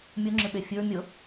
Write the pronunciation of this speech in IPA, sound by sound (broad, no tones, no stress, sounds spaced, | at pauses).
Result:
mʲ u ŋ͡ǁ ɨ ɓ e fʲ ɨ ɹ mʲ ʊ